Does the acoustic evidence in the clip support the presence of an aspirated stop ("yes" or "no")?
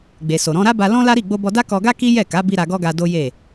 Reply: no